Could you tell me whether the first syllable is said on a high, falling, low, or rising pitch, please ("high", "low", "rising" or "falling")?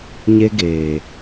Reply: high